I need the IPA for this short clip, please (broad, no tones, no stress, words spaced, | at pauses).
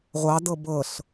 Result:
ʁʷɑdɤ bɤɬ